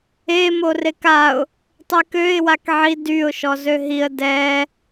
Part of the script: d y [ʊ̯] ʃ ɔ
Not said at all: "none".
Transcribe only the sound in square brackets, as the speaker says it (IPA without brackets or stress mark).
ʊ̯